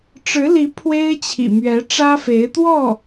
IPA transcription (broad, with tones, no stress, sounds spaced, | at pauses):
ʈ͡ʂ ɻ̩˧˥ l i˧˥ pʰ w e˥ ɪ̯ t͡ɕʰ ḭ˨˩ m ɥ ɛ˧˥ ʈ͡ʂ ä˥ f e˧˥ ɪ̯ t̪ w ɔ˥˩